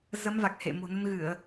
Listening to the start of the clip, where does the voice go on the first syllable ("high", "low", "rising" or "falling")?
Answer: rising